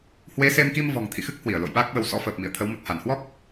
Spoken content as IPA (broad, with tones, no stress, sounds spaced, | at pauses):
h w e˨˦ s e˧ m k i˧ m v ɔ̤˨˩ ŋ t̪ʰ ḭ˧˨ x ɨ˦˥ k̚ h w i˧˩ ə̯ l o̰˧˨ j ɓ aː˦˥ k̚ ɓ ə˨˦ w s ɔ̰˧˥ f əː˨˩ p̚ m ḭ˧˨ ə̯ t̪ʰ ə˨˦ w m ə˨˩ t̚ h a˧˩ n h w ɔ˦˥ k̚